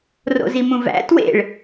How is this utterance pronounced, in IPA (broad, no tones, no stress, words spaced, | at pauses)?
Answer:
ro̰zimũvæ̰ twḛɭ